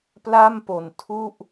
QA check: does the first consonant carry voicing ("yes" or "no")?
no